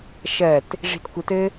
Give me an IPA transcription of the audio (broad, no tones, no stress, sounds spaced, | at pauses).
ʃ ɜ t | ʐ i̤ t kʷ ɘ t ɘ